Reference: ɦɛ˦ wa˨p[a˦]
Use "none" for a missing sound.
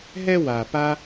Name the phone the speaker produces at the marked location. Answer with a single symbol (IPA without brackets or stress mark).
a˦